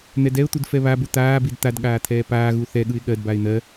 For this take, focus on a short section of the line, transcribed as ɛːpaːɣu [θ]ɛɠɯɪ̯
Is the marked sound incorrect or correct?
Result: correct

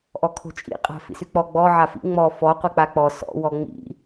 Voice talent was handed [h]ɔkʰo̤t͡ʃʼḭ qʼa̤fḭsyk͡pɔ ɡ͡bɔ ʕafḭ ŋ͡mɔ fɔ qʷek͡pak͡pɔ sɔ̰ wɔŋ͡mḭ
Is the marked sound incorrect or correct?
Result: incorrect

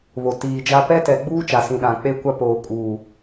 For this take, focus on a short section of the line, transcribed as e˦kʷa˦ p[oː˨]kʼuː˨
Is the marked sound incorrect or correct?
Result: correct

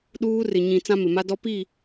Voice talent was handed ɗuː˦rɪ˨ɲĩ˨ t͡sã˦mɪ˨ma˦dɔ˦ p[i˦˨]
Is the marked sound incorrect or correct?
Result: correct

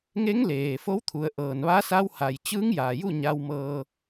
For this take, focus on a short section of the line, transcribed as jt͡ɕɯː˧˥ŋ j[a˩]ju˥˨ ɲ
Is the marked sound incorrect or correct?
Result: incorrect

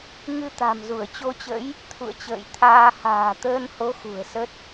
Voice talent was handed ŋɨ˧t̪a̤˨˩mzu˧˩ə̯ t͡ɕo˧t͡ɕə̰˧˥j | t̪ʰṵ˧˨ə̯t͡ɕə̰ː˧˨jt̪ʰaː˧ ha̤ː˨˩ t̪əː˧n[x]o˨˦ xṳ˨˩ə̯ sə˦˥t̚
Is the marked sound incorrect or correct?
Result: incorrect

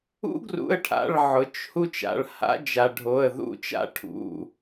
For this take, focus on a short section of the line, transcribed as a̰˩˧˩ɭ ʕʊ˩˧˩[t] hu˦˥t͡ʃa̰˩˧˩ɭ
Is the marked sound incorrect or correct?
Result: incorrect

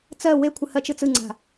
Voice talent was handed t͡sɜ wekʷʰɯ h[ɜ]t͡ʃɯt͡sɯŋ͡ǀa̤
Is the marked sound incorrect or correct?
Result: correct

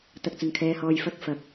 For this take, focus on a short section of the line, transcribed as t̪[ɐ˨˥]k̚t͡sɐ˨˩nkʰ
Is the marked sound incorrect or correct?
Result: incorrect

